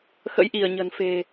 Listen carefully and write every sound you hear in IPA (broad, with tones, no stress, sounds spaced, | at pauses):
x ə̰˧˥ j ʔ i˧˩ ə̯ ɲ ə̤˨˩ n f e̤˨˩